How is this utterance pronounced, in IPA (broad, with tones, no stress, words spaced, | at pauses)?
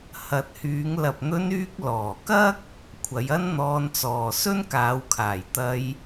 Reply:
hɐ˨t̚hyː˨˧ŋ lɐ˨p̚n̪ɵ˧nyː˧k̚ lɔː˨˩kɐ˥k̚ | kʷʰɐ˨˧jɐ˥nn̪ɔː˧nt͡sɔː˨ sɵ˥nkaː˨˧wkʰaː˨˩j t̪ɐ˧j